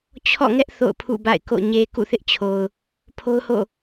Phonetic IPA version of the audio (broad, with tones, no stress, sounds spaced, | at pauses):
t͡ɕʰ ɔ̰˦˨ ŋ ɛ˦ ʔ θ o̰˦˨ ʊ̯ pʰ ṵ˦˨ b a̰˦˨ ɪ̯ k o̰˦˨ ɲ e˨ k ṵ˦˨ θ ɪ˦ ʔ t͡ɕʰ o˨ ʊ̯ | pʰ o˦ ʊ̯ h o̰˦˨